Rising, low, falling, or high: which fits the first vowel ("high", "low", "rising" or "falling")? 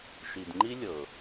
low